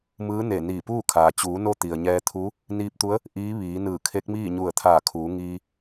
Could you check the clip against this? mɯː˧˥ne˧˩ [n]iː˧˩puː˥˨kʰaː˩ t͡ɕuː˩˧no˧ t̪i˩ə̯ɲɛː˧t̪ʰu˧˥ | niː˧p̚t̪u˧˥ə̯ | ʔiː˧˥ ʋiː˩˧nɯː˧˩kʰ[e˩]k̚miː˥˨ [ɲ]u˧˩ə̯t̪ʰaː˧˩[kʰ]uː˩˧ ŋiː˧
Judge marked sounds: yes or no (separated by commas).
yes, no, yes, yes